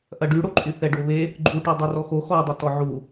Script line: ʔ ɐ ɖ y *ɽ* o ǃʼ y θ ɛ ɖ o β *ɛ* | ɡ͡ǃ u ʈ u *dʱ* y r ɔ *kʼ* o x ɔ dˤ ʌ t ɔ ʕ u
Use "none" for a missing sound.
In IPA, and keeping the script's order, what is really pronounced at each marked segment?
ɽ, e, dˤ, x

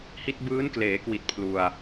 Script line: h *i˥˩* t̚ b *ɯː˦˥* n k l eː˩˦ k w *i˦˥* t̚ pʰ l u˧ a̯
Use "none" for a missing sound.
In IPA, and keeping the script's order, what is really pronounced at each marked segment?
i˦˥, ɯː˦˥, i˨˩

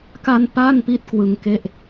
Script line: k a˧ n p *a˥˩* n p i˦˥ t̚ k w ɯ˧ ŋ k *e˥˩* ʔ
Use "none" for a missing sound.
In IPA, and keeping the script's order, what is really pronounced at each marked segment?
a˥˩, e˥˩

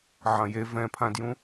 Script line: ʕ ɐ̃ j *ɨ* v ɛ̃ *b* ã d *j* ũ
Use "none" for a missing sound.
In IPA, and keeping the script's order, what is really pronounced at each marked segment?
e, pʰ, j

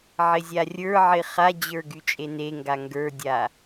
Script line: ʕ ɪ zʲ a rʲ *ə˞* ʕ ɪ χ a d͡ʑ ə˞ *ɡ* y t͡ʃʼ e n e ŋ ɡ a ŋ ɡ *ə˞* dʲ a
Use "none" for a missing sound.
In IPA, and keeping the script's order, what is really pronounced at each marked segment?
ə˞, ɡ, ə˞

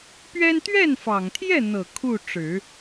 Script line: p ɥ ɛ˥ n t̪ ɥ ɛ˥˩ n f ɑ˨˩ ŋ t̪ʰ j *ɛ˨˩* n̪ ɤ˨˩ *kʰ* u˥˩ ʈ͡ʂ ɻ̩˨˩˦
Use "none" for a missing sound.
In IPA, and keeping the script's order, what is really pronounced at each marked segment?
ɛ˥˩, kʰ

